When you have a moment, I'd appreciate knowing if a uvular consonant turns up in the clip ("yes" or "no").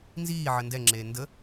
no